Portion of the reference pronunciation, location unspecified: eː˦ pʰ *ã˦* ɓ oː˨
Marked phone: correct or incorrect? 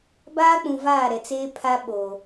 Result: incorrect